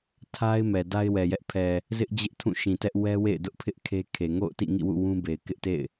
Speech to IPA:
tʰa˦ɪ̯ mɛ˨ da˦ɪ̯wɛ˨jɛ˦ʔ pʰɛ˨ | zɪ˦ʔ d͡ʑɪ˦ʔ tʰũ˦˨ʃĩ˨ tɛ˦ʔ wɛ˦wḛ˦˨ɪ̯dʊ˦ʔpʰɪ˦ʔ kʰe˦kʰe˨ ŋo̰˦˨ʊ̯tḭ˦˨ŋḭ˦˨wṵ˦˨ wũ˦ be˨ɪ̯kɪ˦ʔtḛ˦˨ɪ̯

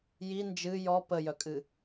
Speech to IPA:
ji nd͡ʒɨ jɔ pəjœkʼɨ

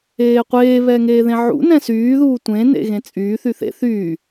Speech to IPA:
eːqʷeː βɛːŋeːðẽʕṵ nɛ̃syːðuː tʷẽ nḛɣẽt͡sʼyː θyθḛ θyː

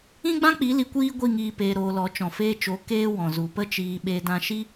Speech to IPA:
ĩ˦ɡ͡bã˦k͡pi˨˦ li˧kʷiː˦ɡʷi˦˨ŋiː˧ peː˧ɾoː˧lɔ˨˦ t͡ʃɔ̃˨feː˧t͡ʃo˨˦ keː˦wɔ̃˨ zu˨pə˦ t͡ʃiː˧ɓe˧ dã˧ʃi˦

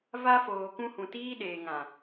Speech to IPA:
va˧foː˨kũ˧ hũ˨tiː˦ɗeː˨ ŋã˨

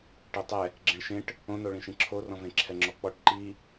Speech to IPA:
ʈetˤɛ | ɡ͡ǁẽɭʃẽʈ | õnoɭĩʃĩ ǁʰorɔ̃vẽ ǁʰɛŋ͡ǁɔk͡pɔʈ ǃi

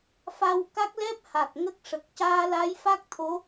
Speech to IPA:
fa˧wka˦˥k̚lɛ˦˥p̚ha˨˩k̚ ŋə˦˥k̚ʂə˨˩k̚ caː˧la˧˥jfa˦˥k̚t̪ʰo˧˥

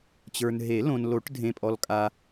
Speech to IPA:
t͡ɕə˞˨nɦe˨˩˦lõ˨n lo˨˩˦ʈdʱẽ˨pʼɔ˨l kʼa˨

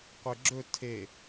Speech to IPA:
qʷeɡ͡ǁɵ tʰe

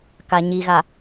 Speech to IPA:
ka˨ɲi˨ɣa˨

